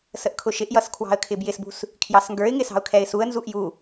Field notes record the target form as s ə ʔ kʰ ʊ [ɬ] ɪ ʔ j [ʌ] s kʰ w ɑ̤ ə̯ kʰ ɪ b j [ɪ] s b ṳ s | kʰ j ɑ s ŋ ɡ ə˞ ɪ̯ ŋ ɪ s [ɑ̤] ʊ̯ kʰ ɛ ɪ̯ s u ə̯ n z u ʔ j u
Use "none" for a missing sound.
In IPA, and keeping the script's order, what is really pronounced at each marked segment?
ʃ, ʌ, ɪ, ɑ̤

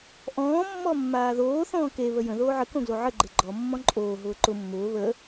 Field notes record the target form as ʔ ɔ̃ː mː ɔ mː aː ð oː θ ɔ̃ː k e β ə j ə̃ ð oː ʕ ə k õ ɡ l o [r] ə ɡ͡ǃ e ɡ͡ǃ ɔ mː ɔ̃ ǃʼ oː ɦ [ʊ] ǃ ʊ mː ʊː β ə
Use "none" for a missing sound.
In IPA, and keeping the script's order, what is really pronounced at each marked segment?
ʕ, ʊː

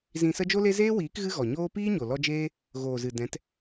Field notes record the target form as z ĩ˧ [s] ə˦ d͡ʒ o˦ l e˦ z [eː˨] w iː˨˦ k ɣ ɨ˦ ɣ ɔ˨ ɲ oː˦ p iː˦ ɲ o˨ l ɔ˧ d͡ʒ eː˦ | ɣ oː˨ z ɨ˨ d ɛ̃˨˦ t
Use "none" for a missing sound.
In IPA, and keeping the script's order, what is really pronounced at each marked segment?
s, eː˦

